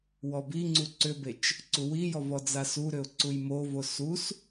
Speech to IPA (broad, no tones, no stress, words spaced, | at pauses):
wɔbiŋ͡ǀu ǀʏbet͡ʃ | ǀuwijɔ vɔd͡zasuɾʏʊ̯ ǀujmovo sus